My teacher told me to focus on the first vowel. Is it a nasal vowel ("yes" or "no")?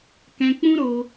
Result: yes